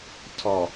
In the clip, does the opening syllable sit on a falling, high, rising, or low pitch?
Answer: low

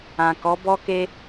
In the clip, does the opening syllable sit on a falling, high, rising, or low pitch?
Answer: low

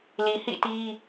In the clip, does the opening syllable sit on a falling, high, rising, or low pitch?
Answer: low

